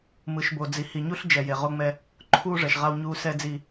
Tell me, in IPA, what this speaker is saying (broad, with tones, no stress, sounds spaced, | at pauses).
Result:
m ɯ˨ ʃ b o˨ d͡z i˨ h i˨ ɲ u˦ ɬ d͡ʒ ɛ˨ j e˨ ʁ o˦ ŋ͡m ɛ˦ | ǃʰ uː˦ ʐ ɛ˨ ʃ ʁ a˦ w ɲ uː˦ s ɛ˦ d͡z i˦